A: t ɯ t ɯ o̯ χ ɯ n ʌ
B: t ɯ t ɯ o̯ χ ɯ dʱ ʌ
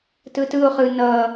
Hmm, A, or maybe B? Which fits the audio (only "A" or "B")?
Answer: A